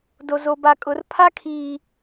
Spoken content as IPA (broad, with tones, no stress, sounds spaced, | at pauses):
d o˨ z o˨ b a˨ kʼ ʊ˨˦ r pʰ a˦ kʰ iː˨